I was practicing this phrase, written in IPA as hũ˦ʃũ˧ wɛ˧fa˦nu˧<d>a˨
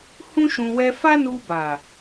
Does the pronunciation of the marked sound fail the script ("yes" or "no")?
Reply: yes